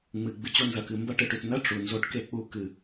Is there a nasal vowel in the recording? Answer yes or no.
no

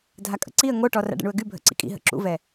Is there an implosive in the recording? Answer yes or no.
no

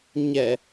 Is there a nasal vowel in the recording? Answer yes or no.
no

